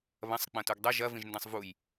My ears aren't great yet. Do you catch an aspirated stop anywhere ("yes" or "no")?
no